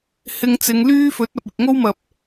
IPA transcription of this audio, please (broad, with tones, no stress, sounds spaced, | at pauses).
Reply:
h ɪ˧ ŋ t͡s ɪ˨˧ ŋ l yː˥ f ɵ˨˥ t̚ ɐ˨ p̚ ɪ˨ k̚ ŋ o˥ w m ɐ˨ p̚